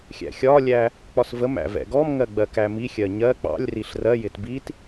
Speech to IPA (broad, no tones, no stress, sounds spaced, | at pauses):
xʲ æ̰ xʲ ɒ lʲ æ | k͡p ɒ s v ə m æ̰ v ɛ̰ ɡ ɔ m ŋ ɜ ɡ͡b ɜ k æ m i xʲ ɜ ɲ ɜ k͡p ɑ̰ lʲ r i ɬ r ɜ j ɪ t b i t